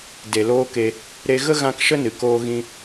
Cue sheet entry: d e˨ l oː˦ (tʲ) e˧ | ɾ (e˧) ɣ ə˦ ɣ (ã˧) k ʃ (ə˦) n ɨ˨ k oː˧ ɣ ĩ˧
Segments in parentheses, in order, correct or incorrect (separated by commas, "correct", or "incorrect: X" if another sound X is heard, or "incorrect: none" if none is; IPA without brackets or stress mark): incorrect: k, correct, correct, correct